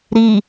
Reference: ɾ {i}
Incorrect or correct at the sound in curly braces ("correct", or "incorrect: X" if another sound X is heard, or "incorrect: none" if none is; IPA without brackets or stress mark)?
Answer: correct